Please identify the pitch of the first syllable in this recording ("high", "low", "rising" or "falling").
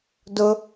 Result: high